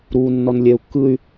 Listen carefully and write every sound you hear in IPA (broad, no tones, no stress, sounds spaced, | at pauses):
ɾ uː nː ɔ n lʲ ɛ u̯ kː ɯ y̯